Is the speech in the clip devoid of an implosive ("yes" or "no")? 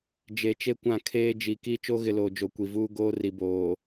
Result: yes